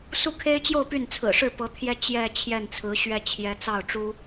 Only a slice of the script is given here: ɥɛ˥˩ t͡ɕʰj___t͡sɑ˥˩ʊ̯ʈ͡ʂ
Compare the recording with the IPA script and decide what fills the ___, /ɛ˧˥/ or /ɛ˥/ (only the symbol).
ɛ˧˥